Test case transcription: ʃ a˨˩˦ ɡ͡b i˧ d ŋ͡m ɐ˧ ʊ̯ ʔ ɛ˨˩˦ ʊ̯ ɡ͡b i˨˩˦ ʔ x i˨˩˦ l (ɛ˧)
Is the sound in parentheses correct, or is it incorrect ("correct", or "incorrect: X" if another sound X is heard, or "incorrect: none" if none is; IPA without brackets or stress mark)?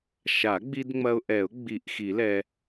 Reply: correct